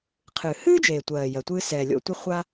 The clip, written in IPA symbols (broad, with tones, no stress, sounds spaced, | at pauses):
qʰ ɨː˩ h ɨː˥ d͡ʒ eː˩ tʷ ɜː˩ j ɜ˩ tʷ ɨː˧ s ɛː˩ lʲ o̰˧ tʷ ɨ˧ χʷ a˥